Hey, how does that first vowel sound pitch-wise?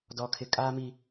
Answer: high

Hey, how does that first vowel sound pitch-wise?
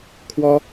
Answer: high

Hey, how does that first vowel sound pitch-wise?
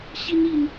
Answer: high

